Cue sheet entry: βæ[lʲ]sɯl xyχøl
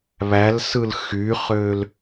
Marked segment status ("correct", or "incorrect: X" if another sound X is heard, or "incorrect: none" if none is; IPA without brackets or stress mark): incorrect: l